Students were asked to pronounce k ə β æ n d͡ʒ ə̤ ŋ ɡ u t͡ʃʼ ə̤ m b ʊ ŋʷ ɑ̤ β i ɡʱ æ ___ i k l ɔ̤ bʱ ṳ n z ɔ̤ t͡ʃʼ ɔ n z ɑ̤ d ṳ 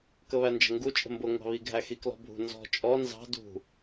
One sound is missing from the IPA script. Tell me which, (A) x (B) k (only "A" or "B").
A